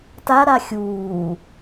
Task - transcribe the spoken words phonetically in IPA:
t a ɾ a xʲ uː

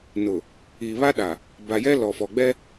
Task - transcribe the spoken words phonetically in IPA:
n ʊ˨ | iː˨ β a˦ ɗ a˨ | b a˨ j ɛ˦ l ɔ˨ f ɔ˨ ɡ͡b ɛ˦

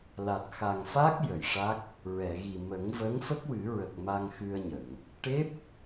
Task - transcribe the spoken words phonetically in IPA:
l a˨˩ t̚ x a˨˩ ŋ f a˦˥ k̚ j ə˨˩˨ j ʂ a˦˥ k̚ | ɹ ɛ˨˩˨ ɣ i˨˩ m ə˨˩˦ ŋ v ə˧˥ ŋ f ə˦˥ k̚ w ɨ˨˩˦ ɹ ə˨˩ k̚ m a˧ ŋ x ɨ˧ ə̯ ɲ ə˨˩˨ ŋ | ʈ e˦˥ p̚

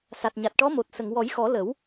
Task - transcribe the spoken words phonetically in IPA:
s a˨˩ t̚ ɲ a˨˩ t̚ ʈ ɔ˧˥ m o˨˩ t̚ s ə˨˩˨ ŋ w ɔ˨˩˦ j x ɔ˨˩˦ l ə˨˩˦ w

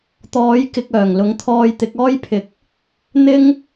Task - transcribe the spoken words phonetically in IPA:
t̪ ɔː˨˥ j k ɪ˨ k̚ œː˨˩ ŋ l ʊ˨˥ ŋ t̪ʰ ɔː˧ j t̪ ɪ˨˥ k̚ ɔː˥ j pʰ ɪ˨ k̚ | n̪ ɪ˥ ŋ

